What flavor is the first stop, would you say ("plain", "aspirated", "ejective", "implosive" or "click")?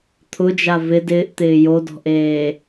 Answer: aspirated